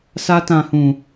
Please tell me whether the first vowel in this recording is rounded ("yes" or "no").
no